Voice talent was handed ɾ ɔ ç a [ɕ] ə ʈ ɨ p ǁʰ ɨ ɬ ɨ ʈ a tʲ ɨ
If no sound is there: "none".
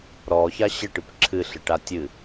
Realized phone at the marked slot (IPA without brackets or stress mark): ɕ